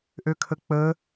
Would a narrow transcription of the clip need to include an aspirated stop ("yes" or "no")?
yes